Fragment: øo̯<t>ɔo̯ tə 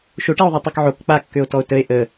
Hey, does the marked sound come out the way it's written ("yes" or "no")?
yes